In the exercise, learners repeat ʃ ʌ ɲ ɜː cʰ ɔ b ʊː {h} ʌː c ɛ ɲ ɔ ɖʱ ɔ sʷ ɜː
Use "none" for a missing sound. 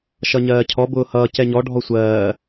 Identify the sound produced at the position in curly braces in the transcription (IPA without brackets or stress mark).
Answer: h